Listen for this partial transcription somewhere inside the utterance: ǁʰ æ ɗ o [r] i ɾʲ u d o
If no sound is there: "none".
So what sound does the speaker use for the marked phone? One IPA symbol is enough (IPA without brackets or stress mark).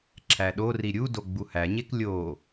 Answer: r